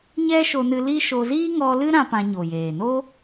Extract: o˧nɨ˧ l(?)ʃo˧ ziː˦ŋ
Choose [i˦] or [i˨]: i˦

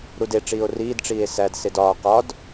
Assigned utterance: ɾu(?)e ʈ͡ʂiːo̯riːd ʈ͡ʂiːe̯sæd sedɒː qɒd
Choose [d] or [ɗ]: d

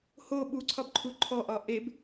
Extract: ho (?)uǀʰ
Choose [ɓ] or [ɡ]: ɓ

